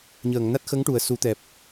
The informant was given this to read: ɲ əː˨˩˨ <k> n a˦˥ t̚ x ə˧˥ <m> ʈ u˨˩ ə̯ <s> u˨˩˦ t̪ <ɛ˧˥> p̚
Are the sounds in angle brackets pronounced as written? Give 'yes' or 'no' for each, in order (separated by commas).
no, no, yes, no